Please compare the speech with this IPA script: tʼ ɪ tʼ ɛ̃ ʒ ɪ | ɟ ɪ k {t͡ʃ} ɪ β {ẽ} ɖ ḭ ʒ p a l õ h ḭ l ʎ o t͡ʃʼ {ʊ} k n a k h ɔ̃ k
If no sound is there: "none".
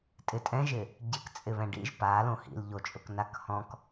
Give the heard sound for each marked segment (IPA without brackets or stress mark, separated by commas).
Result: t͡sʼ, ɛ̃, ʊ